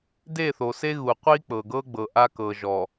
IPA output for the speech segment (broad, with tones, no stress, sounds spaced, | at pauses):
d e˦˨ θ o˨ s e˦ ɣ u˨ qʷ i˦ k͡p ɤ˨ ɡ ɤ˦ ɡ͡b ɤ˨ ʔ a˦ k ɤ˨ ʒ ɔ˨